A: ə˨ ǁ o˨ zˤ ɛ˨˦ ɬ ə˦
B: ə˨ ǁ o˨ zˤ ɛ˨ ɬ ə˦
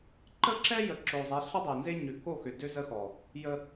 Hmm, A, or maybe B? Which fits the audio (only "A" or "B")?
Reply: A